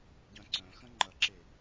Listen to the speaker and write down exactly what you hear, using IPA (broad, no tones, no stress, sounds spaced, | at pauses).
ɟ œ̃ ǀ œ̃ x ə̃ ŋ͡ǃ ɐ ǁ e